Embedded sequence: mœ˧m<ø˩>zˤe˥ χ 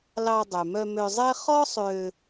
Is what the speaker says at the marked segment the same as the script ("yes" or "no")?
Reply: no